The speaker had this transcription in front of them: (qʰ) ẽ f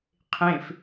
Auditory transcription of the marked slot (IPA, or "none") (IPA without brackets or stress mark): qʰ